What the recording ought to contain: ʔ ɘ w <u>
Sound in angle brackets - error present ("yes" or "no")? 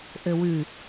yes